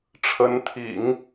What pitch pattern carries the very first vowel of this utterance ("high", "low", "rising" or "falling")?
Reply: rising